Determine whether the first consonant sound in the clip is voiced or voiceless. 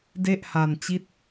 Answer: voiced